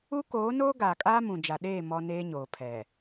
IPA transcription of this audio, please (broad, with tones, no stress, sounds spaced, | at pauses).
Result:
u˦ k oː˨˦ n oː˦ ɡ aː˨ kʼ aː˦ m ũ˨ d͡ʒ a˨ ɗ eː˦˨ m ɔ˦ n eː˦ ɲ oː˨ pʰ ɛ˨